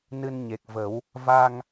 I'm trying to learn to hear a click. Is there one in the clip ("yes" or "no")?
no